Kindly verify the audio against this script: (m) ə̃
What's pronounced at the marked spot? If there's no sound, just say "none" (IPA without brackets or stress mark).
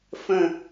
f